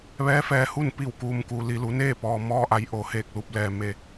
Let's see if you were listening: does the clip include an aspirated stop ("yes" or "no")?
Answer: no